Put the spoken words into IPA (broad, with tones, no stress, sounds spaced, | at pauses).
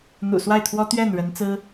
n̪ ṵ˨˩ s w a˥˩ ɪ̯ t̪ʰ w ɔ˥ t̪ ɥ ɛ˥˩ n ɻ ə˧˥ n t͡s ɹ̩˥